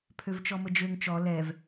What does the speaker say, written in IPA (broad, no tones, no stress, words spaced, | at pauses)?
pʰøvt͡ʃɔməd͡ʒøŋ t͡ʃɔ lɛv